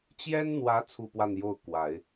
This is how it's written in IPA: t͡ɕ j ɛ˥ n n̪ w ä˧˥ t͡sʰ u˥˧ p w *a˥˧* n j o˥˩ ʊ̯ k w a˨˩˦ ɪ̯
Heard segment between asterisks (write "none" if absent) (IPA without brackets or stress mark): a˥˧